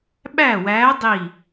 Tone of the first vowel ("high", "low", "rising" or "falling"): falling